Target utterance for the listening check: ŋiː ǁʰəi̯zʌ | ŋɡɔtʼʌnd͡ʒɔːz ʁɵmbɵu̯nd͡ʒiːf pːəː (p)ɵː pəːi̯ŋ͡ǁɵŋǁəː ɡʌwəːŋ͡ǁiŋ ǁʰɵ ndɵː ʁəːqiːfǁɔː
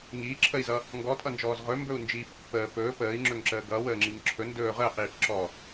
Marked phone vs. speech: correct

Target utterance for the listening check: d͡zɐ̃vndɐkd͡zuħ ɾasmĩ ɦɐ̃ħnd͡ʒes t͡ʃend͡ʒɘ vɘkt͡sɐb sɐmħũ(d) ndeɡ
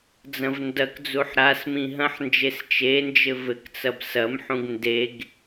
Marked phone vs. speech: incorrect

